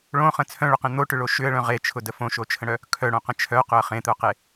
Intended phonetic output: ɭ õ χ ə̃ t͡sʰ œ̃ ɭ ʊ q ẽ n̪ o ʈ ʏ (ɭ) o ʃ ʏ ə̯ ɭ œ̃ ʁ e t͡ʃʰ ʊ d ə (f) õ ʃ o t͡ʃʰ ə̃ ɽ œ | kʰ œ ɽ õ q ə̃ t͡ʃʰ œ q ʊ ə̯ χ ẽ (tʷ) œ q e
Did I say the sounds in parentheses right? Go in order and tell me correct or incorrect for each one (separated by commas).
correct, correct, incorrect